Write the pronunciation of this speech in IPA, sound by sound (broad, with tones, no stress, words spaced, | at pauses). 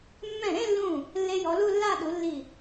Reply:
mːɛ̃˧˩ɾẽ˥˧lːũ˧˩ | lːe˧jɔ˩˧lu˥˧lːa˥˧ ɗu˩˧lːi˧˩